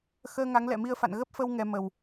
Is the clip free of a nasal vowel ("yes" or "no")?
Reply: yes